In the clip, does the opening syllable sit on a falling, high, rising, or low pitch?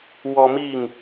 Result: high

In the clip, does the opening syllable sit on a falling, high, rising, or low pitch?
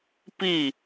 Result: falling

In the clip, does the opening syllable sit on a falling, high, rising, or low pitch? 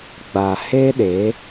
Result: low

